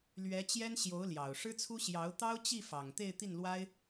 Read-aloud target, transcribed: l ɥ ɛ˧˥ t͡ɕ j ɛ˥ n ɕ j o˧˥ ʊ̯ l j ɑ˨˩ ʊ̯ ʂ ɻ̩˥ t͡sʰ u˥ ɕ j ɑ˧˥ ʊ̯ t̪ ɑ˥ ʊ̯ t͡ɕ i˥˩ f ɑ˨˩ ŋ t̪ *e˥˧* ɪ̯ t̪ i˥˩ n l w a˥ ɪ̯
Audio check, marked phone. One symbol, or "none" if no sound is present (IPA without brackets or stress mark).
e˥˧